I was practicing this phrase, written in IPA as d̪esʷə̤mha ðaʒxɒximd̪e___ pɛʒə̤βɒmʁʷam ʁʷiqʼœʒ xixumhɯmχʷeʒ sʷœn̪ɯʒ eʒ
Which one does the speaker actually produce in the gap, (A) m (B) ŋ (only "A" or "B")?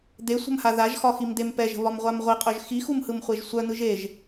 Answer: A